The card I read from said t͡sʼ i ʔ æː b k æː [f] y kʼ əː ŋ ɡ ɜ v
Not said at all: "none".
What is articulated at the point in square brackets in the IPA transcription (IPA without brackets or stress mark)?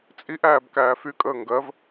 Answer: f